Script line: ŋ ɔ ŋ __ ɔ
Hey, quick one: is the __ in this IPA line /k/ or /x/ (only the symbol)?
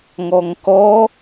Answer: k